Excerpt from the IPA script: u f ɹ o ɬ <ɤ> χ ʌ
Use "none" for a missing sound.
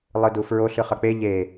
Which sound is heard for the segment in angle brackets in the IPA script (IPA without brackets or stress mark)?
ɯ